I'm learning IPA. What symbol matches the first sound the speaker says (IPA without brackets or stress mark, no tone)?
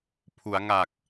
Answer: pʰ